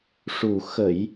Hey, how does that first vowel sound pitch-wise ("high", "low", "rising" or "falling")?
low